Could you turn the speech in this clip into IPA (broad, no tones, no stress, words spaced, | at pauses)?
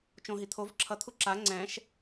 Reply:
t͡ʃõɦi t̪ʰov ǁʰʌt̪ʰu ǁa ŋ͡ǀɛ̃ʃ